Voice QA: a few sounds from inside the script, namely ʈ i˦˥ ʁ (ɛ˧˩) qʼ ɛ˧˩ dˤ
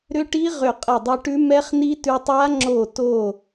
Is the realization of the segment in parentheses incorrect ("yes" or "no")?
yes